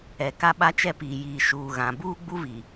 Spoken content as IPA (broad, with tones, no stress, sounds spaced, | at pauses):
ɛ˨ k a˦ ɓ a˦ t͡ʃ ɛ˦ p iː˨ j iː˨ ʃ uː˨ ɣ ã˨ b uː˦ ɡ͡b u˦ v i˨